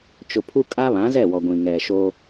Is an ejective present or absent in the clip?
present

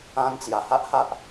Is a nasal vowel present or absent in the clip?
present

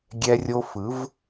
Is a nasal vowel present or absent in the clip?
absent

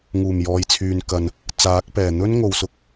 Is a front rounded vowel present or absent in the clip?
present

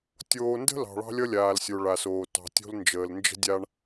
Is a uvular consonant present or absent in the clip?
absent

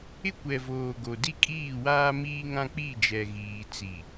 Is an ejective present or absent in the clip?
present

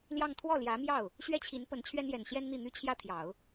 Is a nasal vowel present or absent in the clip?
absent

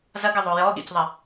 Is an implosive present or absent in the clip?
present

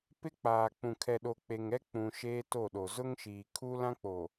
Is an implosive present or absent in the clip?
present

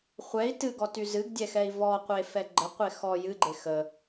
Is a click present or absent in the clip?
present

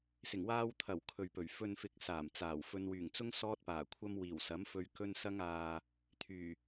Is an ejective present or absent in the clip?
absent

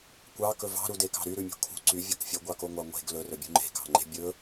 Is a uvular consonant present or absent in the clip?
absent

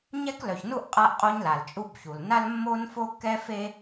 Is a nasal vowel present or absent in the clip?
absent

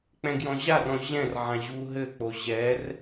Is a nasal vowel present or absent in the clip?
present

